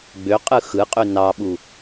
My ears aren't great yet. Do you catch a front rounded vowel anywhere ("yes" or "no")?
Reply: yes